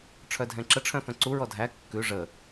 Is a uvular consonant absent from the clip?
yes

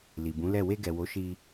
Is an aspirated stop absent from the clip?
yes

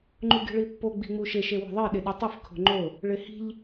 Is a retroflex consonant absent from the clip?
no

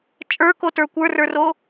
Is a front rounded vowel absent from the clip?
yes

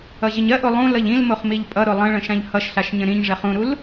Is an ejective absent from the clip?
no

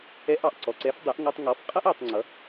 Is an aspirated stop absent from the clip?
yes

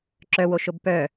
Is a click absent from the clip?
no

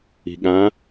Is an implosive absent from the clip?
no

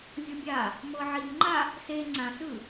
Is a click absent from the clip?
no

